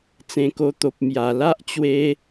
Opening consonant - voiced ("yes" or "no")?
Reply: no